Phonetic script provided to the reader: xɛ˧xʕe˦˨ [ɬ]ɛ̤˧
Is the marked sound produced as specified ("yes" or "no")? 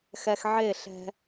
yes